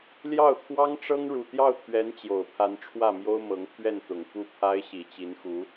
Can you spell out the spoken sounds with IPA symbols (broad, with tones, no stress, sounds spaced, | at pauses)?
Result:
l j ɑ˥˩ ʊ̯ t̪ʰ w ɑ˥ ŋ ʈ͡ʂ ɤ˥ ŋ ɻ u˨˩ t̪ j ɑ˥˩ ʊ̯ t̪ʰ ɥ ɛ˧˥ n t͡ɕ j o˨˩ ʊ̯ pʰ a˧˥ n ʈ͡ʂʰ w ä˥˩ m j o˥ ʊ̯ m ɤ˧˥ ŋ pʰ ɥ ɛ˥˩ n t̪ ʊ˨˩ ŋ f u˥˩ pʰ a˥ ɪ̯ ɕ i˨˩ t͡ɕ i˧˥ n x u˧˥